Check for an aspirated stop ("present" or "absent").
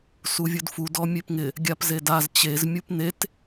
absent